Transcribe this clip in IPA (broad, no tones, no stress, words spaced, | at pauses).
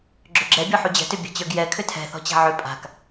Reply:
ɡ͡ǁʏɡ͡ǁɛ bʲɔħud͡ʑɛ̤tʏ bʲɛ̤t͡ɕə˞ɡjɛ kʰʏtʰɛ̤ θɔ̤t͡ɕa̤ʕʏ pʼa̤k